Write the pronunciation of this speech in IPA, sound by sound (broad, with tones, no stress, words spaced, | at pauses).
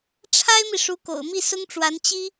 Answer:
ʈ͡ʂʰa˥ɪ̯mi˨ ʂu˧˥ko̰˨˩ʊ̯mi˥˩ sʊ˥ŋʈ͡ʂwa˧˥n t͡ɕi˥